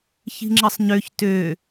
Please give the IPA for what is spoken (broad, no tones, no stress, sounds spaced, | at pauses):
ç i̤ ŋ͡ǁ ə sˤ ɲ ø ç t ø